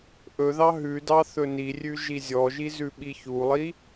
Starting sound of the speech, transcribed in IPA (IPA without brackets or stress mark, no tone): ʔ